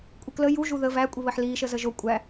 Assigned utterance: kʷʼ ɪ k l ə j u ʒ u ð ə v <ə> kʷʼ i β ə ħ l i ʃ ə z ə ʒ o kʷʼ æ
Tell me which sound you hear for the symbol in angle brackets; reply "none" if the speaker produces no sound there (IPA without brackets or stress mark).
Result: æ